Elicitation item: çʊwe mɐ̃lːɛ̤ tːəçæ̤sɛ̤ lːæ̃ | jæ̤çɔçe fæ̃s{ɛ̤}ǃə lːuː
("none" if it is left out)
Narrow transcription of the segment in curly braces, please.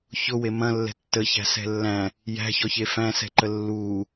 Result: ɛ̤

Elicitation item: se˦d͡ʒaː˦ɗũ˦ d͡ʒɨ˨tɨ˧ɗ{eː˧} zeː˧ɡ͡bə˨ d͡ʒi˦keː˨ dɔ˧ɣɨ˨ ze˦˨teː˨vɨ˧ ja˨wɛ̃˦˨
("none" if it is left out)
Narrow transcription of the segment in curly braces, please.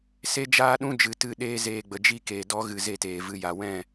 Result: eː˧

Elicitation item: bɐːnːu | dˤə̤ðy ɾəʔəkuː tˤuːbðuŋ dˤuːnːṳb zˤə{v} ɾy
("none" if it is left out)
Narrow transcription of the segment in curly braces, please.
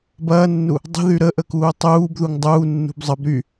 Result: b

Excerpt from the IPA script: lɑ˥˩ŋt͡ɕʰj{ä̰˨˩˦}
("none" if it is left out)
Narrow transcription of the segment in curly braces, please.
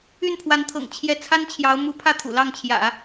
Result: ä̰˨˩˦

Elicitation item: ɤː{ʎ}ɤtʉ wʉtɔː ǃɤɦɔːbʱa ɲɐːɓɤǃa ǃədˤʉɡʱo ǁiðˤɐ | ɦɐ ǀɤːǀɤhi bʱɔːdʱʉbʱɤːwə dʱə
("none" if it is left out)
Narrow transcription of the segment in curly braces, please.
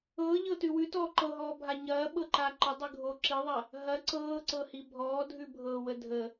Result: ʎ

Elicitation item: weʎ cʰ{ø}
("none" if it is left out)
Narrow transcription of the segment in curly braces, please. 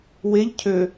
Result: ø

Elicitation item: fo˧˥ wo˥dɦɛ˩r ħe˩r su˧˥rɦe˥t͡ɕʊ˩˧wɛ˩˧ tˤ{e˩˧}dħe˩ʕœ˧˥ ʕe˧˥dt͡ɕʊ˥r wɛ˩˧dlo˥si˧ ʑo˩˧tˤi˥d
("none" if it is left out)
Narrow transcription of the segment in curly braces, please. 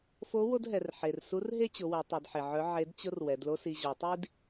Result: e˩˧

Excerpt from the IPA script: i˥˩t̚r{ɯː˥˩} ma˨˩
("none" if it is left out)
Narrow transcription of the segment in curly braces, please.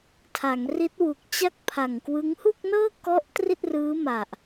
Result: ɯː˦˥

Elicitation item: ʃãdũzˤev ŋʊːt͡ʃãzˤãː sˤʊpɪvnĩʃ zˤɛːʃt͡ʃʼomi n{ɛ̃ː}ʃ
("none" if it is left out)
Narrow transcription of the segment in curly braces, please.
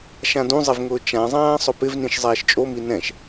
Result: ɛ̃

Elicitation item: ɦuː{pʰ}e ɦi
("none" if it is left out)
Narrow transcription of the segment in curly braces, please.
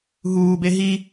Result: b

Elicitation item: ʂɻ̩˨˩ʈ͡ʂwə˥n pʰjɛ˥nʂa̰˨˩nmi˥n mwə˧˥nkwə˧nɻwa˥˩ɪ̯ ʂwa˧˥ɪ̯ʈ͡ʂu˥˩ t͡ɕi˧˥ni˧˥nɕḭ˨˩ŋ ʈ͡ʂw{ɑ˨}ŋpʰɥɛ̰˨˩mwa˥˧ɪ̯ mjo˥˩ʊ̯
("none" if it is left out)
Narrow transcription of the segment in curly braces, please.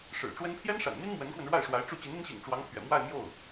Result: ɑ˧˥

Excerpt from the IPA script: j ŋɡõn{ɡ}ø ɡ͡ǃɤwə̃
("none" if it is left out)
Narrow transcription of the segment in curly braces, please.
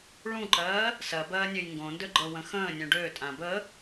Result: d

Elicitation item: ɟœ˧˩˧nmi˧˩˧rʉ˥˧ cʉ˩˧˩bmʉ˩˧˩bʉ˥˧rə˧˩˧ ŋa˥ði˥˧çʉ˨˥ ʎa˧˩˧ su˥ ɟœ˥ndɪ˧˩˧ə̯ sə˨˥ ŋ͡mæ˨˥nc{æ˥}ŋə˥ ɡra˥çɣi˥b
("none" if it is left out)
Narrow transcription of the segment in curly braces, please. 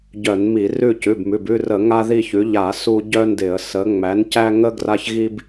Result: æ˥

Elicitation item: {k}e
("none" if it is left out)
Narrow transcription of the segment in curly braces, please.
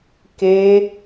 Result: k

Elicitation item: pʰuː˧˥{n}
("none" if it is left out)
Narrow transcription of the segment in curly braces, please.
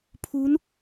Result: n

